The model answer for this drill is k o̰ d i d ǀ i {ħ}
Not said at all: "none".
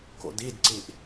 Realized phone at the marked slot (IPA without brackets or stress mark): ʔ